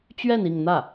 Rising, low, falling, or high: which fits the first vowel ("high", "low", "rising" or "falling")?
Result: falling